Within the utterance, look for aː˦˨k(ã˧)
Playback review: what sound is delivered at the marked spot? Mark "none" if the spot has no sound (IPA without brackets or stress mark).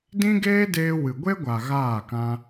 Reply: ã˧